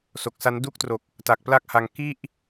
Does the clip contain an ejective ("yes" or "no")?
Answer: no